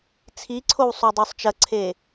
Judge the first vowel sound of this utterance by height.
high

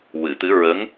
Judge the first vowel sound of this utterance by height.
high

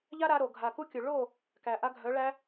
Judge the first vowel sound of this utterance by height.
low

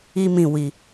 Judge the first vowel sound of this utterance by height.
high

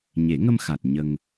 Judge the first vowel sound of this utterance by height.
mid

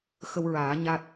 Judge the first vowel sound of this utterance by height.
mid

